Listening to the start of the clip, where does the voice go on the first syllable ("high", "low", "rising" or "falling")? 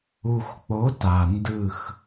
low